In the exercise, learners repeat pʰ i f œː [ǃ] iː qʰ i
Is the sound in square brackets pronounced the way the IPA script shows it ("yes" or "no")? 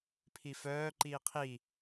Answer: yes